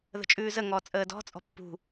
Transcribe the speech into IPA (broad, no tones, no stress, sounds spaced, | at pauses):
ð ə̤ t͡ʃʼ ʉː z ə ŋ ɔː t͡sʼ əː d ɔ̤ t͡sʼ ɔ̤ pː ṳ